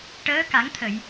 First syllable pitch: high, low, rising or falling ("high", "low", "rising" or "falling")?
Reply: rising